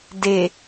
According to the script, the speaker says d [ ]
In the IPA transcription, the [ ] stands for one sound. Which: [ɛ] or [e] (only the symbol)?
e